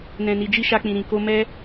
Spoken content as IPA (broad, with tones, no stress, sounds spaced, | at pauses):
n ɛ̃˧ n i˧ d͡ʒ i˦ ʃ a˧ k͡p ĩ˨ ɾ ĩ˨ k o˧ m ɛ˦